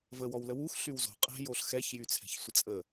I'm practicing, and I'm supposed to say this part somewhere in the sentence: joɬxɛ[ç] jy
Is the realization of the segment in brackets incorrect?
no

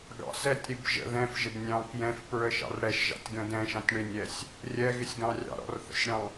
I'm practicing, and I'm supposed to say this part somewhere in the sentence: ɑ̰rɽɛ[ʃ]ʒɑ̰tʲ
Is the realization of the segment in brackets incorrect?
no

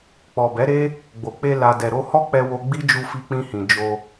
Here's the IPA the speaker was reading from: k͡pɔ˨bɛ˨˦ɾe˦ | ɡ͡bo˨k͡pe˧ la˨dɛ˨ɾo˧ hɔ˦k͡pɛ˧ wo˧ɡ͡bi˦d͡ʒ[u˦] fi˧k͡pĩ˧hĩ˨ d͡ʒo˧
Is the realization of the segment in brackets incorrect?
yes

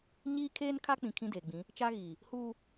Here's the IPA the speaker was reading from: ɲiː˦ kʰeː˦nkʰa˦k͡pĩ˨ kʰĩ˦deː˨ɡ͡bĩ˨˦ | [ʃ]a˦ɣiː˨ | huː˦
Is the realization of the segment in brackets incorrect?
yes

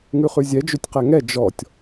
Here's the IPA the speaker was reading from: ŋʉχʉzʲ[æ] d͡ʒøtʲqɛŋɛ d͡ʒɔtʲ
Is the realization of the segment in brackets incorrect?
yes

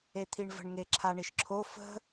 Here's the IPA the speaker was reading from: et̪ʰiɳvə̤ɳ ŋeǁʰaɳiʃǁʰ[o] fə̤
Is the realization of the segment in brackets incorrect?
no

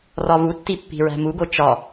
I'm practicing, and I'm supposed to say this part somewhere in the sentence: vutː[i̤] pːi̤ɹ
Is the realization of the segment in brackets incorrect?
yes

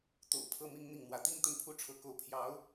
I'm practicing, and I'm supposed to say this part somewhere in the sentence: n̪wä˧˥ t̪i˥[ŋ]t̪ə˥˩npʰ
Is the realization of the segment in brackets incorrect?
no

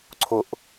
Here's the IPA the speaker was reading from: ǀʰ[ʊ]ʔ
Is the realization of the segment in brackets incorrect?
no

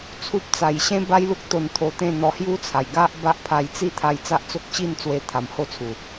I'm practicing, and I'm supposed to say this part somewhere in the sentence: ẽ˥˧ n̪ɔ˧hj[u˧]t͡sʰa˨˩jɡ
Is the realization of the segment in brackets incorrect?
yes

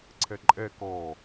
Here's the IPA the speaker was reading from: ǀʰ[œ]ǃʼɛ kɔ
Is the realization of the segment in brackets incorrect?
yes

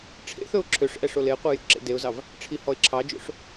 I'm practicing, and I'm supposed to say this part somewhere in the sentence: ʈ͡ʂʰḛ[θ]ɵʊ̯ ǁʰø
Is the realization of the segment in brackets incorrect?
no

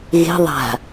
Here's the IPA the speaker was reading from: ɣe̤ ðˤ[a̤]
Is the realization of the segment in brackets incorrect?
no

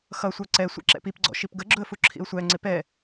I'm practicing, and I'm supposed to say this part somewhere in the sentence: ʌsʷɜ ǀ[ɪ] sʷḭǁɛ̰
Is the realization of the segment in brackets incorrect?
yes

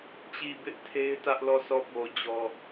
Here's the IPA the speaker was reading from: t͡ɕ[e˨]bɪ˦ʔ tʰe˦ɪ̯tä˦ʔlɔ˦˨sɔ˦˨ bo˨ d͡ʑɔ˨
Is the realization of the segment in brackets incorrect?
yes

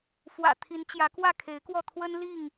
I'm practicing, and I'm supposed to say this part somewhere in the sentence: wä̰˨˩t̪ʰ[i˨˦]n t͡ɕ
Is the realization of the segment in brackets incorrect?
no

